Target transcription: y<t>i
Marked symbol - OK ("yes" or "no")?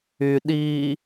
no